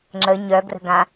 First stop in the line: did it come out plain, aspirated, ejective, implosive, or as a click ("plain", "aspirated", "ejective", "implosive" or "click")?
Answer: click